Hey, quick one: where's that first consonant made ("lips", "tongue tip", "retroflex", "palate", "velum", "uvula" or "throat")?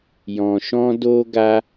palate